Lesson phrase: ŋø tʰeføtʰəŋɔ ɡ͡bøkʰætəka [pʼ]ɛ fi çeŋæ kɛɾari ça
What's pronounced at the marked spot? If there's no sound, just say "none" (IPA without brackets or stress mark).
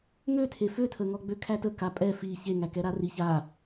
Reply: pʼ